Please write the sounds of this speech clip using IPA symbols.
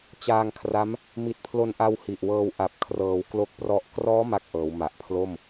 t͡ɕaː˧ŋkʰra˦˥m | mi˨˩t̚pʰlo˧nʔa˧w hi˨˩ʔwɤː˧w ʔa˨˩p̚kʰrɤː˩˦w klo˦˥k̚prɔ˦˥ʔ krɔː˦˥ ma˥˩k̚ʔɤː˩˦w ma˨˩ʔpʰlo˥˩m

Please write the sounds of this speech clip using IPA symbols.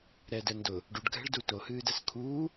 ɾɛdɛ ndʊ | ɖuɖɡʱɛ̤ɭdu tohɨːdɛs kʰuː

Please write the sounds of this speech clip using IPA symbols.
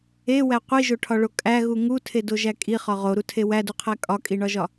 ewæ qʷiʒoʈʰɒɭo kʼæɣu ŋutʰedoʒæ kʼiχɒ ʁoɾutʰe wæduqʰæ kʼɒkʼiɳɒʒɒ

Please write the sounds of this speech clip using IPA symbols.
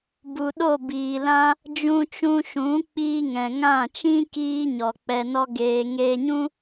bu˨ɗo˦˨biː˨lã˦ | d͡ʒũ˧t͡ʃũ˧ʃũ˨˦ k͡piː˧ŋɛ̃˨ŋã˦˨ t͡ʃĩ˦ kiː˦ɲɔ˨ k͡pɛ˧nɔ˦ɡeː˧ ŋeː˧ɲũ˦

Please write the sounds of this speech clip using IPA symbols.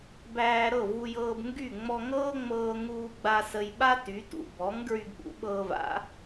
bæː˧ɾɤ˥˩ vu˧jɤː˧bŋɡy˥˩ ŋ͡mɔ˧ŋɤː˥ŋ͡mɤː˧ ŋuː˧ɡ͡ba˧ sə˧jɓa˥ ty˩˥tṵ˩ bɔ˩˥ŋ ɡɹy˧ɡɓṵ˩˥ ɓɤː˧va̰˩˥

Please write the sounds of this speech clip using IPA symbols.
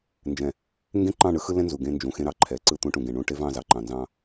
nd͡ʒɛ̃˨ | ŋɡẽ˦ǃɑ̃˦˨ɳɯ˦xɯ˦ lɛ̃˦nzu˨ ɡẽ˦nd͡ʒũ˨xẽ˦ɾɑ˨ ǃʰɛ˨ǀɯ˦˨ t̪ũ˦ʈũ˨ ɡẽ˨ɳũ˦˨ʈe˦vɑ̃˦˨ zɑ˨ǃɑ̃˨nzɑ̃˦

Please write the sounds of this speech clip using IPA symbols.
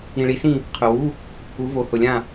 ĩ˨ɭi˨˥sĩ˦˨ | qʰʊ˨wu˧˥˧ | u˨˥vo˨˥ hʊ˨lʲã˦˨

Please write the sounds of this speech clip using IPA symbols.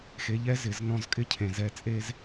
xe˨ʎɛ˧ zɪ˨znɔ̃˧zkʼɪ˦cʰẽ˨ zɛ˧t͡sʼe˦z

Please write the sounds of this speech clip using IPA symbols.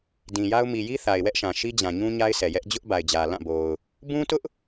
dĩ˨ja˦ʊ̯ mi˨ji˦ θa˨ɪ̯wɛ˦ʔʃã˨ ʃi˦d͡ʑã˨ɲũ˦ ɲa˦ɪ̯sʰɛ˨jɛ˦ʔ d͡ʑʊ˦ʔba˨ɪ̯d͡ʑä˨ lã˦˨bo˨ʊ̯ | bũ˦tʊ˦ʔ

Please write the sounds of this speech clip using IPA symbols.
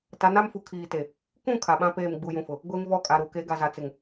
ta˨˦na˦mfu˨ kʰiː˨te˨ | kũ˦˨ kʰa˨ɓã˦peː˦˨m ɡ͡bu˨jũ˨fʊ˨ | ɡʷe˦ŋvɔ˦˨kʼa˨ɾu˨ ke˨˦ɡa˨za˨t͡sɪ˨ŋ

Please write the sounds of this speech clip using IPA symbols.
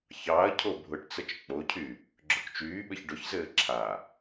çɑɐ̯cʰo bʱʊʈt͡sət͡ʃ k͡pocʰy | ɡ͡ǁʊkt͡ʃyːɓɘç ɖʊçzɘː ǁʰa

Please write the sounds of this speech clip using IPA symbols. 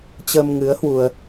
t͡ɕə˧mŋɨ˨˦ə̯ hwu˧ə̯

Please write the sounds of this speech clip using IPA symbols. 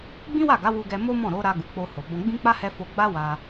ɡ͡bĩ˦wa˦˨ɡa˨˦ wu˧ɡɛ˧ mo˦mɔ̃˦˨ɾo˨˦ɾa˧ ɡu˨k͡po˧ ho˨bɔ̃˧ ɡ͡bĩ˦k͡pa˦hɛ˧ fo˧ɡ͡ba˦wa˧

